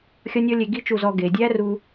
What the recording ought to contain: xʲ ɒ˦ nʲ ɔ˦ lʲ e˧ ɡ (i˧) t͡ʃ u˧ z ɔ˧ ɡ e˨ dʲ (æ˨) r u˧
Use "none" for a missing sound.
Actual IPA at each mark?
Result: i˦, æ˦

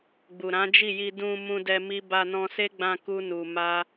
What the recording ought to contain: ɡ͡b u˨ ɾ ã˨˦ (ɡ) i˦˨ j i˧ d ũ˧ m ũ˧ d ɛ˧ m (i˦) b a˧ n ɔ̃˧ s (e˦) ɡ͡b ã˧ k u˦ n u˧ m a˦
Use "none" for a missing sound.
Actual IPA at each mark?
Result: d͡ʒ, i˦, e˦

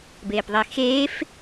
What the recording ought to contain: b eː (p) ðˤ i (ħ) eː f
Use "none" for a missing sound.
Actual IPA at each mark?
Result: p, x

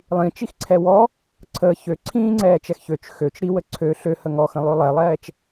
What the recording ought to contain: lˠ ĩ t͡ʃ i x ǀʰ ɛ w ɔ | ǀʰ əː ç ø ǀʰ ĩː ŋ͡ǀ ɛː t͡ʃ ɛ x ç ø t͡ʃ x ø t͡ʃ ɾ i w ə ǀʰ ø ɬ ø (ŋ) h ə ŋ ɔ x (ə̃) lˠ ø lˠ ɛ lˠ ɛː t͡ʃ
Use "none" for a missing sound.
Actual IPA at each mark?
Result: none, ə̃

